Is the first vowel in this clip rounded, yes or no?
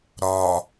yes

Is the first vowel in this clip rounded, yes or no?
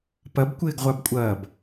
no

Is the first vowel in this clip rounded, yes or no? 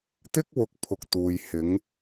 no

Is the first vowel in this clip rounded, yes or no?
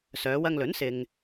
yes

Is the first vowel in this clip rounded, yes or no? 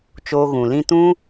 yes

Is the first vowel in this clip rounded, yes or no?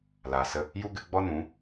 no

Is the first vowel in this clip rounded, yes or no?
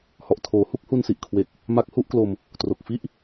yes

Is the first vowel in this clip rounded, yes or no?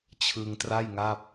no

